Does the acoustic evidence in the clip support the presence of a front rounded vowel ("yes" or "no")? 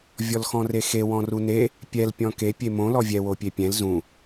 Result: no